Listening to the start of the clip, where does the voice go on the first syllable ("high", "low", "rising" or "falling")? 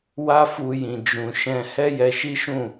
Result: high